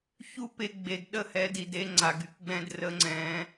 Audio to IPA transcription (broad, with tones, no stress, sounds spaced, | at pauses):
ç u˦ p e˧ ɡ͡b e˨ d ɗ ə˦˨ h ɛ˨˦ d i˨ d e˦ ŋ͡ǀ a˨ ɡ y˨ k ɡ͡b ɛ̃˧ d r ə˨˦ ŋ͡ǀ ɛ̃˨˦